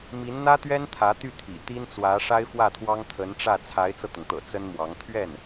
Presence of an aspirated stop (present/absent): present